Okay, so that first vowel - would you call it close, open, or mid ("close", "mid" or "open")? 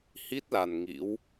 close